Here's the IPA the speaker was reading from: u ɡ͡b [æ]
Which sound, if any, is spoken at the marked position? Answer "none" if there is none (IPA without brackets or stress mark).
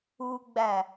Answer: æ